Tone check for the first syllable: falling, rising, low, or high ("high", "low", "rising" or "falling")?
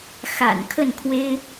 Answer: low